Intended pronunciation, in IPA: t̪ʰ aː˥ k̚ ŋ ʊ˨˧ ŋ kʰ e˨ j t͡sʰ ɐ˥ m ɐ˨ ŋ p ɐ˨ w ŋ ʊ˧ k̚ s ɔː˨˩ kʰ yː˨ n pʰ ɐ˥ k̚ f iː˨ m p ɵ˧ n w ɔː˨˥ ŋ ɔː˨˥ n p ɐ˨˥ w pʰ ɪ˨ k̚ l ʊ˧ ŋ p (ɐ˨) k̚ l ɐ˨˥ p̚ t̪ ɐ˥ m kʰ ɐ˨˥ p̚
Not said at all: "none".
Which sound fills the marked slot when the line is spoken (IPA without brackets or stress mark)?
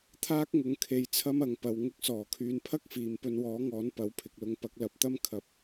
ɐ˧